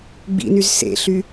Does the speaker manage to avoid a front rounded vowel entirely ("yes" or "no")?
no